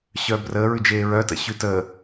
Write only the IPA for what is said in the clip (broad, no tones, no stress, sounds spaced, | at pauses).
ɕ œː b r əː ɹ ʉ d͡ʒ eː ɹ œ t ə̰ ɕ ʉ t ə